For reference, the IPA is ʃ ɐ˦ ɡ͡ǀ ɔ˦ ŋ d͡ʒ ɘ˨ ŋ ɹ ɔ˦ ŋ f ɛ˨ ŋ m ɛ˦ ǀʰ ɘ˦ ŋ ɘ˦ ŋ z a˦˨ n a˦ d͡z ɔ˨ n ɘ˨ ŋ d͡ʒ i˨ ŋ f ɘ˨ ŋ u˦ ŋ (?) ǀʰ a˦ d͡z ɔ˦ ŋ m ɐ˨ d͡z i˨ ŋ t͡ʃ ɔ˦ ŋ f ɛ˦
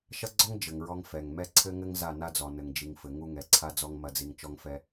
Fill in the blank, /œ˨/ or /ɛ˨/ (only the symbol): ɛ˨